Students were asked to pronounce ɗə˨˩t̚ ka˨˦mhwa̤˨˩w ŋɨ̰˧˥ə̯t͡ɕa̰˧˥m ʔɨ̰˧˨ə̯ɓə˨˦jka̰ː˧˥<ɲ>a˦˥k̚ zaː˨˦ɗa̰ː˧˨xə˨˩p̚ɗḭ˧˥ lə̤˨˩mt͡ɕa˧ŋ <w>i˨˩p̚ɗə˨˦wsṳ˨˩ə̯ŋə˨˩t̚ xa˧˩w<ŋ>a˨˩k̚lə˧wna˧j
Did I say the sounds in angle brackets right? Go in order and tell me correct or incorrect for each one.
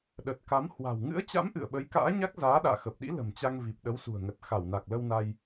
correct, incorrect: v, incorrect: n

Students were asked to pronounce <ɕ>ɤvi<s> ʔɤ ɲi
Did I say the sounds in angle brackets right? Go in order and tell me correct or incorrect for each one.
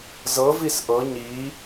incorrect: z, correct

